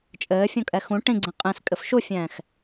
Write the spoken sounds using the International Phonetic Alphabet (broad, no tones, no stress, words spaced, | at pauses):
t͡ʃʼɘːfʲũkʼɛ xũ ʈĩɡ͡ǀẽ qʼĩskʼɘf ʃufʲɛ̃ːx